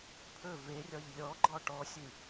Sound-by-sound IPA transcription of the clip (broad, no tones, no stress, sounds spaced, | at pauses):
pʰ ɵ v e rʲ ɒ ʎ lʲ ɔ ɡ͡ǃ ɒ ʈ ɔ sʲ ɨ